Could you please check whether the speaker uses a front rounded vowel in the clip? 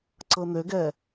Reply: yes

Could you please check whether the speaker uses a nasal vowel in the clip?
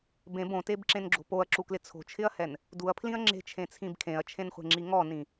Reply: yes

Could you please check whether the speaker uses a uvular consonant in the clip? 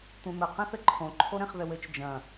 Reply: yes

